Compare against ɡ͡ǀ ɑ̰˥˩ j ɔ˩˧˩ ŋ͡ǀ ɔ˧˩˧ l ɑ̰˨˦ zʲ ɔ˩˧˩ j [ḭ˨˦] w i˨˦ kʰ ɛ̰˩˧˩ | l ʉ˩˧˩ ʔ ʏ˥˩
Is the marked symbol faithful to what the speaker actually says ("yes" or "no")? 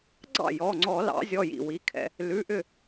no